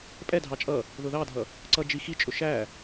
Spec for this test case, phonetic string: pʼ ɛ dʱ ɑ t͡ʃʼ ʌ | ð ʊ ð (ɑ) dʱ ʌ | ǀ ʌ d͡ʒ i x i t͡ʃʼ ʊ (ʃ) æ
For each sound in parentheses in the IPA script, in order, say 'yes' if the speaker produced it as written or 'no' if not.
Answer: yes, yes

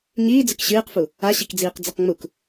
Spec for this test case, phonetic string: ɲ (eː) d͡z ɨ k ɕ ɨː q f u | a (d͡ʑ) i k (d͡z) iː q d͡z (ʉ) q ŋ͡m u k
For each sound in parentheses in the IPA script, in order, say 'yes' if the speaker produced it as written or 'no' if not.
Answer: no, no, yes, no

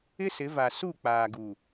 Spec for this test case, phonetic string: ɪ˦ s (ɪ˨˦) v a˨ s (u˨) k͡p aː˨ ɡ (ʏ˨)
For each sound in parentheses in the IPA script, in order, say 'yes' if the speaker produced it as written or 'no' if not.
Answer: yes, no, no

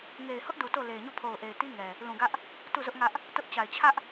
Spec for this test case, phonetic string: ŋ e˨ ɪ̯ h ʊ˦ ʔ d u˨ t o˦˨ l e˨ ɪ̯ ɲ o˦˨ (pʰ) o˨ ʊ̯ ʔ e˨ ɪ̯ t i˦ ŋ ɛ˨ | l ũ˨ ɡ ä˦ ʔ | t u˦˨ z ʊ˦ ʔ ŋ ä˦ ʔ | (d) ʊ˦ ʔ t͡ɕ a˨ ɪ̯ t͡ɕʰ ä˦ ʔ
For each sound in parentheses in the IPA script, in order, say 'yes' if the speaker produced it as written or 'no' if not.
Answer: yes, no

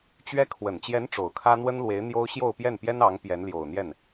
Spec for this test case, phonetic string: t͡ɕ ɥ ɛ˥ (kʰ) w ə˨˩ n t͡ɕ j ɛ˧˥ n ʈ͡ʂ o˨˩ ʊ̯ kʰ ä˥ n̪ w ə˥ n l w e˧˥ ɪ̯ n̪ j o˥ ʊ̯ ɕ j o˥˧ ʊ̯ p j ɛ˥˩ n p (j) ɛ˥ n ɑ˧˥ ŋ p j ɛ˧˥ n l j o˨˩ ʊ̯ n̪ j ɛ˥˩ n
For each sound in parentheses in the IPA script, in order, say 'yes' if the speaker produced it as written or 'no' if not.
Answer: yes, yes

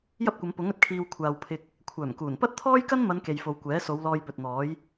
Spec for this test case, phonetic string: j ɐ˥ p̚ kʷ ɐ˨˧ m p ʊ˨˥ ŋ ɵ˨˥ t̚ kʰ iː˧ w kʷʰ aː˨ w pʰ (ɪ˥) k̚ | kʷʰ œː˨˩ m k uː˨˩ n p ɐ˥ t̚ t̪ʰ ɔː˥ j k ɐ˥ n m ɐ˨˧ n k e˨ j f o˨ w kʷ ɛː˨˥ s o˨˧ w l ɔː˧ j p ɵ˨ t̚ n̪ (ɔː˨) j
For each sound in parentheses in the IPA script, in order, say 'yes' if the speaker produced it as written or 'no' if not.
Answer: no, no

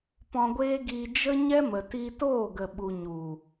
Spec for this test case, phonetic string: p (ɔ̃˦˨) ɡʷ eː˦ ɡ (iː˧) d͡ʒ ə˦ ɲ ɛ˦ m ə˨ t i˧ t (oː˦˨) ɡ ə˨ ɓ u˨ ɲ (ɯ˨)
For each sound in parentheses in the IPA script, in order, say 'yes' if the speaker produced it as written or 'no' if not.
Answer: no, yes, yes, no

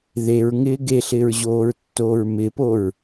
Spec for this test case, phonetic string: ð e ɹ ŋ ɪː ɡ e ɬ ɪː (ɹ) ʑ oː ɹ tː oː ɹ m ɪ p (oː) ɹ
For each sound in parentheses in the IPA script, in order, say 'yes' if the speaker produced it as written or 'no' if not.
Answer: yes, no

